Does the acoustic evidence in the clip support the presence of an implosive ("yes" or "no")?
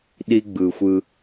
yes